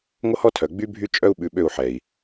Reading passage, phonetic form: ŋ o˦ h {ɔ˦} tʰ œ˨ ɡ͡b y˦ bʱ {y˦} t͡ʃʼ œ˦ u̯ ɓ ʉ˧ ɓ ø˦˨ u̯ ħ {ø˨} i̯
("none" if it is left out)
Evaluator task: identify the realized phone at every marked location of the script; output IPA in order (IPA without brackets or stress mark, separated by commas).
ɔ˦, y˦, ɛ˨